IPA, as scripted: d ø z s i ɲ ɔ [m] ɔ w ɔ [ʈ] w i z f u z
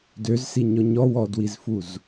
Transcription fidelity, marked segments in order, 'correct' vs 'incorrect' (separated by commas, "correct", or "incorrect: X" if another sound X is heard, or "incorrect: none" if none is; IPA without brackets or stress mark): incorrect: ɲ, incorrect: d